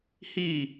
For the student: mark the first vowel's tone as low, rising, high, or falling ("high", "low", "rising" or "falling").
falling